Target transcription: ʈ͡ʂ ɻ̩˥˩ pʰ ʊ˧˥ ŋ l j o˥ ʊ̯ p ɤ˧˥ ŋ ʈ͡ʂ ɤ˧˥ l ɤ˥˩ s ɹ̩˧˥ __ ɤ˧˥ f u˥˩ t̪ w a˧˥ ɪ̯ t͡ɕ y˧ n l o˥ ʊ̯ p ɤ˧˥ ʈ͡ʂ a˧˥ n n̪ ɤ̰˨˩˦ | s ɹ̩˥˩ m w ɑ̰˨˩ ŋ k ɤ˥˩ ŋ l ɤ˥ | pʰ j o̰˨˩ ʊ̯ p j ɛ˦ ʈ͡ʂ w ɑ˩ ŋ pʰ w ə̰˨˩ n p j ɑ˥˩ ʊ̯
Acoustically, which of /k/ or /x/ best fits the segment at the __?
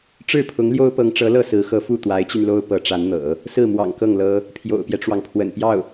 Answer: x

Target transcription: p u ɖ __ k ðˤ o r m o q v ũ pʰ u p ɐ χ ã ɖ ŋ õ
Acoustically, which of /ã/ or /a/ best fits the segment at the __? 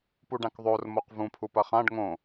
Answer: ã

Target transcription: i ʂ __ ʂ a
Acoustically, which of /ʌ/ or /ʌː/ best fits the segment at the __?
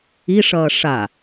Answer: ʌː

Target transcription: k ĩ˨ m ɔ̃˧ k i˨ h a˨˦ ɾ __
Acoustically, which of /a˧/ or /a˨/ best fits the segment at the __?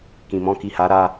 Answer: a˧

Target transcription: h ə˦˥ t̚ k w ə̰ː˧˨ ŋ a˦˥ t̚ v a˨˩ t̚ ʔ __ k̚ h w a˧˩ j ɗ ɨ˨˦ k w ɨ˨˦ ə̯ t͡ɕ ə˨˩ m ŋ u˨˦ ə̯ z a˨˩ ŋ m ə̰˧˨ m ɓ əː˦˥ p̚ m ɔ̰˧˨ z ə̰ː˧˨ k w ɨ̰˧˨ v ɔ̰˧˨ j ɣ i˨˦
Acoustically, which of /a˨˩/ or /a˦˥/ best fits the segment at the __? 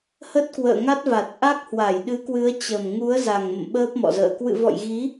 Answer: a˦˥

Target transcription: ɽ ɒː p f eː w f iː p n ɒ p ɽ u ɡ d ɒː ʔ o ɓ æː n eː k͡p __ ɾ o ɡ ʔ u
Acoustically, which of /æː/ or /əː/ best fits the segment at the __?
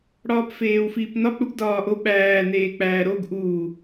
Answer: æː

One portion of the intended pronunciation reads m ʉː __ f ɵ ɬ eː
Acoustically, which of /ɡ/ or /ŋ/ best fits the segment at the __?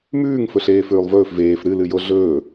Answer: ŋ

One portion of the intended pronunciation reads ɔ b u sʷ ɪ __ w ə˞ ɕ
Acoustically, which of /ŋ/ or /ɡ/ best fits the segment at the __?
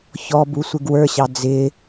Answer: ɡ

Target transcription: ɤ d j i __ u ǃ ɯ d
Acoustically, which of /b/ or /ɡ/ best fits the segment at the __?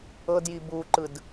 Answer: b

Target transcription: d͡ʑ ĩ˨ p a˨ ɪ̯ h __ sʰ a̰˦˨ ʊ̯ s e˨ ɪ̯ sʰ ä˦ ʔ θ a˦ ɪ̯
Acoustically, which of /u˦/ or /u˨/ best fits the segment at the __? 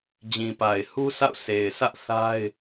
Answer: u˦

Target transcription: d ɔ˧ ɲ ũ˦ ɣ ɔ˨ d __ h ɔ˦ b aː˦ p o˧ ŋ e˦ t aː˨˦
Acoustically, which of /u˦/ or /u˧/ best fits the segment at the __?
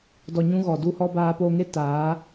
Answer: u˦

